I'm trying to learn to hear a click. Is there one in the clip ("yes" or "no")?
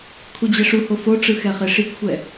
no